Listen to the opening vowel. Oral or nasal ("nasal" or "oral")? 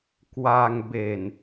oral